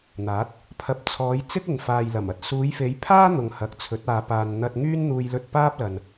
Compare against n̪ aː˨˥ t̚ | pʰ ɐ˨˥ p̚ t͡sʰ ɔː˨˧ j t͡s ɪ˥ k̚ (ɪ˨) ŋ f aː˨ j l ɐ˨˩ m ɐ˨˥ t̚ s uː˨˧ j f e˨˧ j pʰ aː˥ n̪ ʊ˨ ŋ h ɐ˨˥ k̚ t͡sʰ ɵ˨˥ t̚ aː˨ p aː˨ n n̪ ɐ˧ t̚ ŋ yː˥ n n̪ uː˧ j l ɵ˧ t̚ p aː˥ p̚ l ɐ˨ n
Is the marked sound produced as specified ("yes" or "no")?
yes